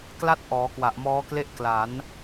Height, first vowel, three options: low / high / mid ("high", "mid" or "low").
low